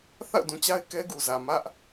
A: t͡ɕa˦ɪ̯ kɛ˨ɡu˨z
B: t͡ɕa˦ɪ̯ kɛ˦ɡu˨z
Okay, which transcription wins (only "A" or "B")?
B